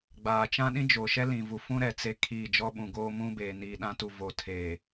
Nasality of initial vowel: oral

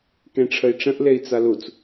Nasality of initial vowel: nasal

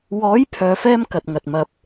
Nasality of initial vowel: oral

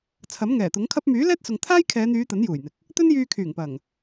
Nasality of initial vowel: oral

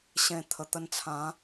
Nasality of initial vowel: nasal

